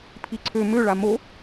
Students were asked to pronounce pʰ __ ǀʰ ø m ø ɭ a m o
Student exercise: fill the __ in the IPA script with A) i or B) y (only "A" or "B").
A